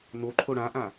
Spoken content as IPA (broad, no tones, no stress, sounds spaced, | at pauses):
n o ǃʰ o ɽ ã ʔ ã